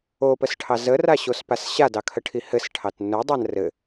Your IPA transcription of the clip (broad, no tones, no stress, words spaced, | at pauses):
opəsʈʰɑ zəraɕospas ɕadɑkʰəʈʰi hɘsʈʰɑt nʊdˤan rɘ